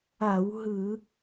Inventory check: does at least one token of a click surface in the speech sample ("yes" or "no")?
no